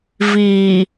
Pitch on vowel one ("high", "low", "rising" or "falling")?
low